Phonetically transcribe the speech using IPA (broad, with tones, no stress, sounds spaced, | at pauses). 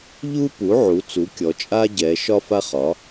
ʎ u˥ p u˩˥ ʕ u˩˥ t͡s u˩˥ kʲ ɔ˩˧ t͡ʃʼ a˥ ɟ ɛ˩˧ ʃ ɒ˥ f a˥ χ ɒ˩˥